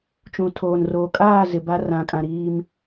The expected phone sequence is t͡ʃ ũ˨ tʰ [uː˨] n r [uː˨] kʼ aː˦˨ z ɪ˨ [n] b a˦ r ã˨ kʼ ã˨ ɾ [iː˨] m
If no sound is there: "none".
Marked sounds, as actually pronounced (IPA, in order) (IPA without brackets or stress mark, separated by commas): oː˨, oː˨, none, iː˦